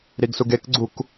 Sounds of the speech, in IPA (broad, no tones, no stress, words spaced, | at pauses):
ɾiɡsuɡekɡ͡ǀuk